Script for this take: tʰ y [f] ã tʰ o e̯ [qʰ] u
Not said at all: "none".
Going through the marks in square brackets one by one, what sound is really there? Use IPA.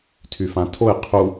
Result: f, qʰ

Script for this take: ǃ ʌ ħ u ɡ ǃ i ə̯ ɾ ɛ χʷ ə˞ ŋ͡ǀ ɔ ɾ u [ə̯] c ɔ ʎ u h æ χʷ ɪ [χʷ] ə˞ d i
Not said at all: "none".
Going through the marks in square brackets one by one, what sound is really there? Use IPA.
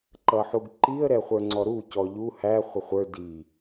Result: none, χʷ

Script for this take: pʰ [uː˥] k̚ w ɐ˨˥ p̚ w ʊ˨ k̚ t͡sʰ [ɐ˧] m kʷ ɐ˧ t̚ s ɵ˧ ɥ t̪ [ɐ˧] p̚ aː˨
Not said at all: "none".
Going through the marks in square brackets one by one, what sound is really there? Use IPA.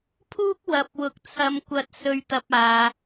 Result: uː˥, ɐ˧, ɐ˧

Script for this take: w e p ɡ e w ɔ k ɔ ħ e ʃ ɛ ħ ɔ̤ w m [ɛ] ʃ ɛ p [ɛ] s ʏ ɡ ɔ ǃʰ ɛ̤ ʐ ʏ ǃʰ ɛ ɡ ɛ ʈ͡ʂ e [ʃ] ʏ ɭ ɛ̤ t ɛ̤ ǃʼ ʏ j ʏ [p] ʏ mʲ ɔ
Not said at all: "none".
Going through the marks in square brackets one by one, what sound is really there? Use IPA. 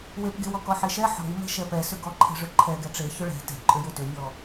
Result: ɛ̤, ɛ, ç, t

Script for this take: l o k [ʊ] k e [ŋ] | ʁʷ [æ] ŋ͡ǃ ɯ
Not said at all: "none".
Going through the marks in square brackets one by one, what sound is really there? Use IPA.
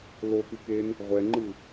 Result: ɯ, n, ɛ

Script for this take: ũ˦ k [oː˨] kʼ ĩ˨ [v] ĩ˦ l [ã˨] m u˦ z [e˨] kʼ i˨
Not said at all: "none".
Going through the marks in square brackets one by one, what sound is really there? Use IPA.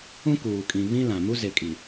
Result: uː˨, β, ã˨, e˨

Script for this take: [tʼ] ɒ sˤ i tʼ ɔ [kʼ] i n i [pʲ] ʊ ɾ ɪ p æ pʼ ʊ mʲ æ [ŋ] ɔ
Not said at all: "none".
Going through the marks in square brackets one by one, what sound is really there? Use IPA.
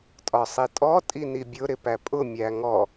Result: tʼ, tʼ, bʲ, ŋ

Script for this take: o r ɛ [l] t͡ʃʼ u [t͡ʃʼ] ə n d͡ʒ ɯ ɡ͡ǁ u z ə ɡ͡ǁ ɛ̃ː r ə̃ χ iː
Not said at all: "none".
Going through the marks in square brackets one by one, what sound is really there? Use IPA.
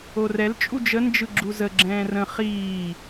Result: l, d͡ʒ

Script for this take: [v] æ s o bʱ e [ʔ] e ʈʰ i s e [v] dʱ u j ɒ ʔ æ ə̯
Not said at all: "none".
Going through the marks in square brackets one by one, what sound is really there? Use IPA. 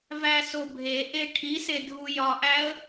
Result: v, ʔ, none

